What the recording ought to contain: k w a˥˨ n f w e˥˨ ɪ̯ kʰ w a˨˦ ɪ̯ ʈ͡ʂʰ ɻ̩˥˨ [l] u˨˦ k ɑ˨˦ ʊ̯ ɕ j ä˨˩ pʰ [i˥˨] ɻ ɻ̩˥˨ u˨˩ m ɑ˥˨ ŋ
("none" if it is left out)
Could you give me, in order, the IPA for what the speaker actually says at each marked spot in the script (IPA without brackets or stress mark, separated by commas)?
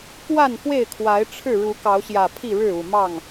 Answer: ɻ, i˥˨